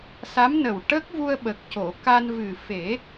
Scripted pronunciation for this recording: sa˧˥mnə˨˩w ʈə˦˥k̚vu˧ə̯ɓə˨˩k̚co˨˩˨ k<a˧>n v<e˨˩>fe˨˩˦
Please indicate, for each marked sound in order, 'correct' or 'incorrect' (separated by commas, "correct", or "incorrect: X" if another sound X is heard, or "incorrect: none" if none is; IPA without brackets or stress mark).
correct, incorrect: ɨ˨˩